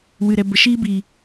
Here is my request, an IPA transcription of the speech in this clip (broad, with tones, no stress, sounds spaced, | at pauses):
w ɨ˨ ɾ ɛ˨ b ə˨ ʃ iː˦ b iː˨